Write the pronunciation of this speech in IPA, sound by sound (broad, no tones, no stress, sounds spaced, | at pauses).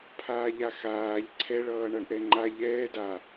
pʰ aː ʎ a x aː ʎ ǀʰ ɛ ɭ ʌː ɳ ʌ ɳ ʔ ɛ ŋ͡ǃ a ʎ ɛː d a